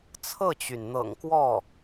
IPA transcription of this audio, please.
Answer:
t͡sʰ ɤ˥˩ t͡ɕ y˩ n n̪ ɤ̰˨˩ ŋ k w ɔ˥˩

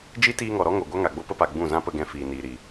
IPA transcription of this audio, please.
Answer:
d͡ʒ i˦ t iː˧ ŋ ɔ˨ ɾ ɔ˦ ŋ o˨ ɡʷ a˦ ŋ a˨ ɡ͡b o˦ p ə˦ p a˨ ɡ͡b ũ˦˨ z ã˦ p ə˧ ɡ ɛ̃˧ f iː˨ n iː˨ ɾ i˨

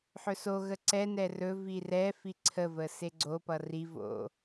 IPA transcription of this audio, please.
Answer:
ħ ɵ s o ɣ ə ǀ ɛ n ɛ r ɵ v i r ɛ f i ǀʰ ə v ə s e ɡ͡ǀ o p ʌ r i v o̰

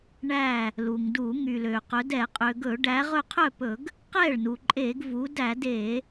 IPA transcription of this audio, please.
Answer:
ɳ æ˧˩ | l u˩ ŋ d u˧˩˧ ŋ y˩ l ø˩ q ɵ˩˧ d ɛ˧˩˧ qʼ ø˩ ɡ ɵ˧˩˧ ɖ æ˩˧ ʁ ɵ˧˩ qʰ œ˥˩ p ɵ˧˩˧ ɡ | q ɛ˥˩ ɭ n u˩ ǃʼ e˧˩˧ ɡ v u˩˧ d æ˧˩˧ d e˧˩˧

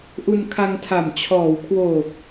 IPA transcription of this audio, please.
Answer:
ʔ u˧ n kʰ a˧ ŋ tʰ a˨˩ m t͡ɕʰ ɔː˩˦ w kʰ w oː˨˩ k̚

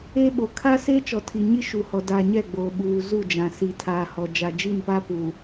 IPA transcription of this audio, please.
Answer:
eː˦ ɓ o˨ kʰ a˦ s eː˦ t͡ʃ ɔ˨ tʰ i˨ ɲ i˦ ʃ u˨ h ɔ˨ d aː˨ ɲ ɛ˦˨ ɡ͡b oː˨ ɓ uː˨ z u˦˨ d͡ʒ ã˨ s i˨ tʰ aː˨ h ɔ˨ d͡ʒ a˨ d͡ʒ i˦˨ n p a˦ p uː˨

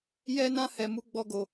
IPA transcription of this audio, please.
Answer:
j ɛ˦ n ã˦ h ɛ˧ m u˦ ɡ͡b ɔ˦ ɡ o˧

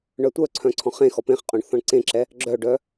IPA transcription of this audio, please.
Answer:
ɳ œ tʷ œ ǀʰ œ̃ ǀʰ ɔ̃ χ ẽ x ɔ p ẽ χ qʼ õ ɳ θ ɔ̃ ɳ ǀ ẽ ǁ ɛ | ɡ͡ǁ œ ɖ œ

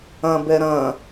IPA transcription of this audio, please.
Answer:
ɐ̃ b ɛ ɾ ɐ̃

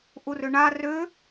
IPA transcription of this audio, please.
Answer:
ʔ u r ʏ ɳ a r ʏ

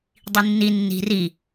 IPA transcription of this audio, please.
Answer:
dˤ i nː i nː i̤ r i

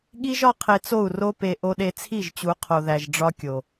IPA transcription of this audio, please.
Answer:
ɠ i˦ ʒ ɒ˦ qʰ e˧ t͡s o˦˨ u̯ r o˦ p e˧ ʔ o˧ ɗ e˧ t͡sʰ i˦˨ ʒ t͡ɕ u˨˦ qʰ o˨ ð æ˨ ʒ ɖ͡ʐ ɒ˦ kʲ o˨

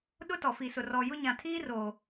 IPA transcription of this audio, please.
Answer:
ɗ ʊ˦ t ɔ˨ f i˨ s ʊ˨ r ɔ˨ j ʊ˦ ɲ ã˨ tʰ iː˦ r oː˨

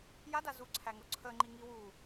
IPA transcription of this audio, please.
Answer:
j a d a z u ǀʰ æ ŋ o ǀʰ ə ŋ͡ǃ i ŋ i w u

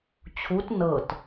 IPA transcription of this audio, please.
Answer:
t͡ɕʰ u t n ɤ t

